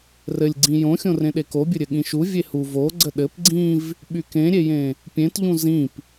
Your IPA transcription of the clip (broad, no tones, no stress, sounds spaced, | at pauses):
r ɘ lʲ ɡ͡ǀ ĩ j õ xʲ õ r ẽ ɗ e k o bʲ ɘ ɾʲ ɘ ɠ ĩ ʃ u vʲ e h u v o ɡ͡ǀ ə ɗ ɘ p ɡ͡ǀ ĩ v | ɓ y k ẽ ɾʲ e j ẽ | pʲ ẽ t ʎ ũ z ĩ p